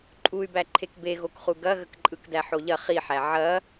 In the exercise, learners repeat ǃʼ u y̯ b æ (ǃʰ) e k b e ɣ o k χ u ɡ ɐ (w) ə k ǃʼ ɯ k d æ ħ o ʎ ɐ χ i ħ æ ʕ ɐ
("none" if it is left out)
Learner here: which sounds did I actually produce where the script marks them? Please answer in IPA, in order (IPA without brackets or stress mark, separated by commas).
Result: ǃʰ, ɣ